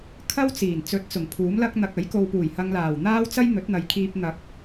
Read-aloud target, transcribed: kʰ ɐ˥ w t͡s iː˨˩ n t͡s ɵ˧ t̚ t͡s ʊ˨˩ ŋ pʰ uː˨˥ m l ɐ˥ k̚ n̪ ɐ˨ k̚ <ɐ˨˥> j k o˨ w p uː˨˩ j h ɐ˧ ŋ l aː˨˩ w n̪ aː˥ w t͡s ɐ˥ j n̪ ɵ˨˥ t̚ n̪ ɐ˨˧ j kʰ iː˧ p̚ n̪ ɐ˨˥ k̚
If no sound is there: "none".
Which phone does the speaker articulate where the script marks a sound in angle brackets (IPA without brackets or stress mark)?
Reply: ɐ˨˥